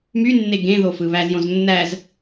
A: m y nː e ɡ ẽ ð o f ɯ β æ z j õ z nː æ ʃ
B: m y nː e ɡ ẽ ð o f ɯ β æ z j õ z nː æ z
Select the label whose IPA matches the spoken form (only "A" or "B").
B